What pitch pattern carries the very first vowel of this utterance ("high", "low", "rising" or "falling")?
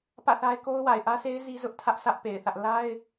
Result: falling